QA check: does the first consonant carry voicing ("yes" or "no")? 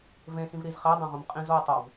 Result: yes